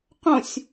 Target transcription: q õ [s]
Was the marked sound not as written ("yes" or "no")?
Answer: yes